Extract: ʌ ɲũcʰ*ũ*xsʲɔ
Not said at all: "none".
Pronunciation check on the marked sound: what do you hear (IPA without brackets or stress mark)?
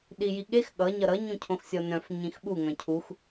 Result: õ